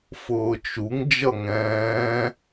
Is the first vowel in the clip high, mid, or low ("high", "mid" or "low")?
high